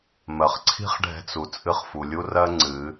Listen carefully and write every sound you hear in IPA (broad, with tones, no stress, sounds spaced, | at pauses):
m ɜ˩ χ ǀʰ i̤˥ χ ɖʱ ɛ̤˧ t͡s u˩ t͡sʼ ɨ˧ χ f u˩ lʲ u˥ r ɜ˥ ŋ͡ǀ ɨ˩˧